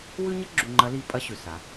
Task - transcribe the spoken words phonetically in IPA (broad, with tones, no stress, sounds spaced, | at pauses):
w ʉ˥ ɲ ʌ˥ ɡ͡ǁ u˧ ŋ͡ǃ ɐ˧˥ l i˧˥ pʼ ɐ˧˥ ɕ ʉ˩ s a˩˧